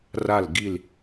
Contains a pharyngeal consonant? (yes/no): no